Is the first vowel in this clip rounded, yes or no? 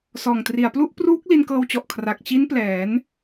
yes